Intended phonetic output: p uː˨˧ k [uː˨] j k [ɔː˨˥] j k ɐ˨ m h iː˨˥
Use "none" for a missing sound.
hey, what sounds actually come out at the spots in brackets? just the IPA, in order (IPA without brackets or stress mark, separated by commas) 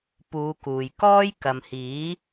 uː˨, ɔː˥